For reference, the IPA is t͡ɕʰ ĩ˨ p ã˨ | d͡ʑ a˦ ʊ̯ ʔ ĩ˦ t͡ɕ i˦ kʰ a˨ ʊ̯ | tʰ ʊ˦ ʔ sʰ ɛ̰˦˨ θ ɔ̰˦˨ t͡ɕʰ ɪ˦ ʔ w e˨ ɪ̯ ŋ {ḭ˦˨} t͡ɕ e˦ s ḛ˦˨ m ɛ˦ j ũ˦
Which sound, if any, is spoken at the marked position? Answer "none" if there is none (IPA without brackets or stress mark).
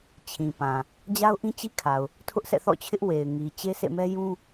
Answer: i˨